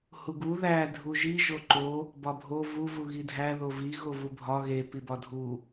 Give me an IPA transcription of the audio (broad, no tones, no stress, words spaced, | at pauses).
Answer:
huɡu ðæ dʱuʒi ʒoǃo | bɒbʱo vu vuɣidʱæ ðovi ɣovubʱɒ ɣe pibɒdʱu